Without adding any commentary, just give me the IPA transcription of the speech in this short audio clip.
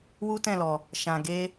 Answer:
w u˦ t ɛ̃˦˨ l ɔ˨ | ʃ ã˨ ɡ e˧

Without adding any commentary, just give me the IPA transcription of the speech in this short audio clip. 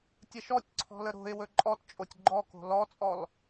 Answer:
tʲ ə ʃ ɔ tʲ ǀʰ ɔ̤ l ə ɾ o̤ ɪ̯ w ɵ ǃʼ ɔ t t͡ʃʼ o tʲ ɡ͡ǃ ɔ k o̤ l ɔ t͡sʼ ɔ l

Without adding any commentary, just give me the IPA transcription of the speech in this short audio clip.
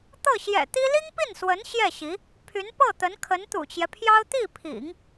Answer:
t̪ ɤ˥˩ ɕ j ɛ̰˨˩ t̪ i˥ l i˥ ŋ p i˥˩ n s w ə˧˥ n ɕ j ɛ˥˩ ɕ i˧˥ | pʰ y˧˥ n p ɤ˥˩ t̪ ə˧˥ n kʰ ə˧˥ n t̪ ṵ˨˩ t͡ɕ j ɛ˦ pʰ j ɑ˥ ʊ̯ t̪ i˥˩ pʰ ḭ˨˩˦ ŋ

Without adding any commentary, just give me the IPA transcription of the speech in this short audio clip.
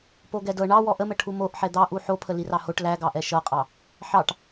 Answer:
p o ɡ ɛ d ɤ ɳ ɑ w ɔ ʔ ə m ə ʈʰ u m o ʔ ħ ɛ d̪ ɑ ʔ u ħ o pʰ ə l i r ɑ h o ʈ l æ ɡ ɑ ʔ ɛ ʃ ɤ qʼ ɑ | ħ ɑ ʈ

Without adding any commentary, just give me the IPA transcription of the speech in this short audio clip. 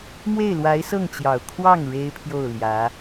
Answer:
m w e˥˩ ɪ̯ l w a˧˥ ɪ̯ s ɤ˥˩ ŋ t͡ɕ j ɑ˨˩ ʊ̯ kʰ w ɑ˥˩ ŋ ɻ e˥ ɪ̯ pʰ j o˥˩ ʊ̯ l j ä˧˥

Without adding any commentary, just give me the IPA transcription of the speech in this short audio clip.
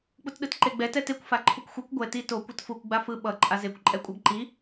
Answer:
k͡p u t ɗ ɯ t ǃ e ɡ͡b ɛ t ɛ t e kʷ f a ǃʰ u kʷ xʷ ɛ kʷ ɡʷ ɛ t i t o kʷ ʌ t f u kʷ ɡ͡b a f ɯ ɓ ʌ ǃʼ a z e kʷ ǃʼ ɛ kʷʼ a ɡ ǃ i

